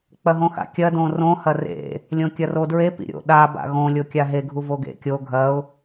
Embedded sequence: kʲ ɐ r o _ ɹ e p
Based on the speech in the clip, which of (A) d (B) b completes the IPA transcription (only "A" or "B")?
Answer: A